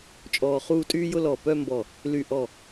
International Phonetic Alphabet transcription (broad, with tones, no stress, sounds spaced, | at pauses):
t͡ʃʼ ɔː˧ χ uː˥˧ tʼ yː˥ j ʊ˥ l ɔ˧˩ p œ˥˧ m b ɔ˧˩ | l y˧˩ ʔ ɔ˧˩